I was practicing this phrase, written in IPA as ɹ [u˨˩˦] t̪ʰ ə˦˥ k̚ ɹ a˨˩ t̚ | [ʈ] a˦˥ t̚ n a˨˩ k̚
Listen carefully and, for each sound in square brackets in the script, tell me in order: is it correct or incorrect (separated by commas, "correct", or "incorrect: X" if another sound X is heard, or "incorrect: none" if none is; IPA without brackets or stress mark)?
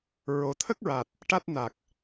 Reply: incorrect: o˨˩˦, correct